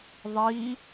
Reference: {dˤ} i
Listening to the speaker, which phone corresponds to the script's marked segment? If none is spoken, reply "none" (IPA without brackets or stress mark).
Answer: ðˤ